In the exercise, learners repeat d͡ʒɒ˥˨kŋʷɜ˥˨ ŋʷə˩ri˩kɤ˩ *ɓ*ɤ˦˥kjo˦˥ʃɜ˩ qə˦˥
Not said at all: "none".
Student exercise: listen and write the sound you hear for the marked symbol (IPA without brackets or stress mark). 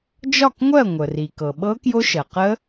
ɓ